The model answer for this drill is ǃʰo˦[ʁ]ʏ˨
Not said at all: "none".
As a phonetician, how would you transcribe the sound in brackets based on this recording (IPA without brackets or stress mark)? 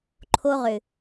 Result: ʁ